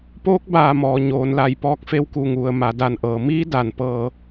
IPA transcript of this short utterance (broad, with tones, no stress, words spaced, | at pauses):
poː˧˥k̚baː˧˩mɔː˩ ɲoː˩nla˧˩jpɔː˧k̚ fe˧wku˧˩ŋu˩ə̯ ma˩da˧˩nʔɤː˩miː˧˥ da˩npɤː˧˩